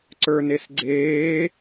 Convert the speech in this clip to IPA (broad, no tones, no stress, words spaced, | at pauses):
ǀə˞nesɡ͡ǀeː